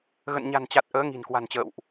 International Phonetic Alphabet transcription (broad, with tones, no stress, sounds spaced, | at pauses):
ɣ ə̰˧˨ n ɲ a̤˨˩ n t͡ɕ a˨˩ t̚ ʔ əː˨˦ ŋ i̤˨˩ n k w a̤˨˩ n t͡ɕ ə̰ː˧˨ w ʔ